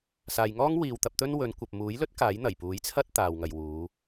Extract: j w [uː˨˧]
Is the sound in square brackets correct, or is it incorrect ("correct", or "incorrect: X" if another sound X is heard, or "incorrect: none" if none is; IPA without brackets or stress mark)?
correct